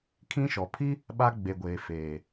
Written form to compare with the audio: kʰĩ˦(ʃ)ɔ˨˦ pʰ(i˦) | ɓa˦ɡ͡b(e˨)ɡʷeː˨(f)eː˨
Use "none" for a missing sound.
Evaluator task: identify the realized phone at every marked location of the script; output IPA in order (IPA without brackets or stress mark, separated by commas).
ʃ, i˦, e˨, f